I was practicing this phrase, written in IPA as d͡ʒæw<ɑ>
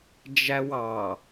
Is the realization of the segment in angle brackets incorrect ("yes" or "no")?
no